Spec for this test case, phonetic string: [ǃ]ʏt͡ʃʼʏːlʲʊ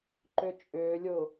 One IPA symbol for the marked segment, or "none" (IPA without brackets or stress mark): ǃ